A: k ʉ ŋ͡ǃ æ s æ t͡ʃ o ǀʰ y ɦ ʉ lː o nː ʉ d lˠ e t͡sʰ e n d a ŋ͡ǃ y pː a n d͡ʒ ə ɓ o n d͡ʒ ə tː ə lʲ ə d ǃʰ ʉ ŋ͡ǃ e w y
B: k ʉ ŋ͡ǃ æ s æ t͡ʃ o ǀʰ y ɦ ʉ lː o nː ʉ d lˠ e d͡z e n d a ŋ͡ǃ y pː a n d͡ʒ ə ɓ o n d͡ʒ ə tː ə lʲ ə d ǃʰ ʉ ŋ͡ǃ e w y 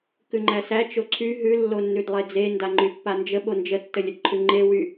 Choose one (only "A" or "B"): B